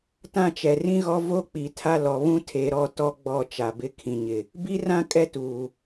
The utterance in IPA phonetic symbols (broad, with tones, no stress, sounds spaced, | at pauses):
t ã˦˨ t͡ʃ ɛ˨ r ĩ˦ ɣ ɔ˦ v o˦ k͡p i˨ tʰ a˦ l ɔ˨ β ũ˦ tʰ e˨˦ ɾ ɔ˦˨ t ɔ˦ ɡ͡b ɔ˦˨ t͡ʃ a˨ b ɪ˦ kʰ ĩ˨ ɲ ɪ˨ | b i˦ r ã˦ kʼ ɛ˦ t uː˨